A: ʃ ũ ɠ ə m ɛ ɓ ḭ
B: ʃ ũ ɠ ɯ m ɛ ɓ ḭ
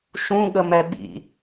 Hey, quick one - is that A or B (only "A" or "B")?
A